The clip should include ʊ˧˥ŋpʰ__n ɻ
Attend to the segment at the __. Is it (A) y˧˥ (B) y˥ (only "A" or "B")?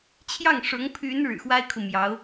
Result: A